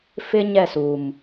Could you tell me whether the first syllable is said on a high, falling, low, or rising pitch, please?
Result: high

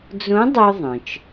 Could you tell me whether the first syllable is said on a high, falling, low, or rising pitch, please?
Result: rising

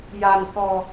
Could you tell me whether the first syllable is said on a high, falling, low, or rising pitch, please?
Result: low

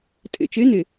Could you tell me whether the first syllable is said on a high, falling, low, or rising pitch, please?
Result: low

